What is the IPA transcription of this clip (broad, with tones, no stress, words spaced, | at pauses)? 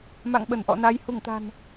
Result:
ma̰˧˨ŋɓə˧˩nʔɔ̰˧˨na˨˦j hu˧˩ŋt̪a̤˨˩n